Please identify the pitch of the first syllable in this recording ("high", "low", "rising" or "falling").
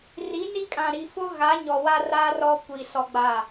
rising